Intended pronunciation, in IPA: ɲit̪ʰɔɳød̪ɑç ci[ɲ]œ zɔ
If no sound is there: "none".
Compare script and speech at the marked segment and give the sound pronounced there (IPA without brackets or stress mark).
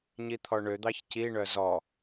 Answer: ɳ